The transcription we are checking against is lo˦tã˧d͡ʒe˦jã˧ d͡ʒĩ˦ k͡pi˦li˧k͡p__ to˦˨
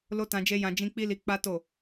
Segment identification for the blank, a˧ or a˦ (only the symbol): a˦